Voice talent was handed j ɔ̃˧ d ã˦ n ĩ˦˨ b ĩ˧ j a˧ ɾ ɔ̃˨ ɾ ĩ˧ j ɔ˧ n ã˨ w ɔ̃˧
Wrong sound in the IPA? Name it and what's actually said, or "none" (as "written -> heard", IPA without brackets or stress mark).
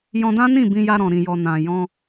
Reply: w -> j